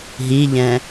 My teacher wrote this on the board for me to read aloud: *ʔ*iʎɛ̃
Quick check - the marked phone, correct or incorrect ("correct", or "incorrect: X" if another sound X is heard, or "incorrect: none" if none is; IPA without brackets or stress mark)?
incorrect: ɦ